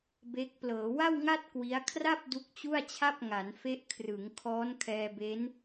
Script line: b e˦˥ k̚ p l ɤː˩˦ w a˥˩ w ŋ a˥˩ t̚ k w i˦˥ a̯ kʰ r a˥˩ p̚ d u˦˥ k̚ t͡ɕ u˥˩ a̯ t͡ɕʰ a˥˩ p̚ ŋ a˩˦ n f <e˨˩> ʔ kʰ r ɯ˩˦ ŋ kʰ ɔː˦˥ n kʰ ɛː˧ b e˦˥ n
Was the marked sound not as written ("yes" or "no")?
yes